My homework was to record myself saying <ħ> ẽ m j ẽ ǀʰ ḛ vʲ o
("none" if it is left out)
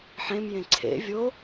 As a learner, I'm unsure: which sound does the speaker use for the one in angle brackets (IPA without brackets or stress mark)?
ħ